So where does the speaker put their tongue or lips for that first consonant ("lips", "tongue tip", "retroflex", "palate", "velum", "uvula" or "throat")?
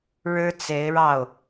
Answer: retroflex